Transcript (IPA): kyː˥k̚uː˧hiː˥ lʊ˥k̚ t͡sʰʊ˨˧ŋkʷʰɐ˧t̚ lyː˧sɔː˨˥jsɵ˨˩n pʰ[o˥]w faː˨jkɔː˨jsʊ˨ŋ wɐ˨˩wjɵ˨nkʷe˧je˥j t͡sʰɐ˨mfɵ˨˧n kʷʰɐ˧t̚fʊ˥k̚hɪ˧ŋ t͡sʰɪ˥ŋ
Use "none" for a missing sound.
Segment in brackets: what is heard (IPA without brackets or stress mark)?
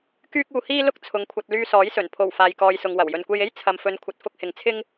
o˨˩